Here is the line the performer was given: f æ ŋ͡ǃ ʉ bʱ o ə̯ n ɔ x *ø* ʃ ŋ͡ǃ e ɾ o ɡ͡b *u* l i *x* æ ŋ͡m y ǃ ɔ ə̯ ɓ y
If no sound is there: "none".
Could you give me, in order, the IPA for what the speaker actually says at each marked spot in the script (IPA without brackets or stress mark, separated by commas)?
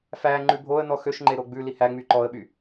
ø, ʉ, h